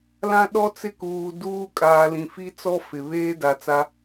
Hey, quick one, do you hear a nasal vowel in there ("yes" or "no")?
yes